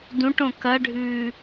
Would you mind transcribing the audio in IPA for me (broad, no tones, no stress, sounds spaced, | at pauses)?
d ũ ʈ õ k ɐ ɖʱ ʉː